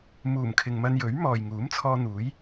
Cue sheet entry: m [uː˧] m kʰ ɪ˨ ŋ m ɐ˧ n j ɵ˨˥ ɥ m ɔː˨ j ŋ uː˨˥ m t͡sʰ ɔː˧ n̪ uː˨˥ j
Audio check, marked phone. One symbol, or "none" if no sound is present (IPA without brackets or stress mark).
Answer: uː˨˩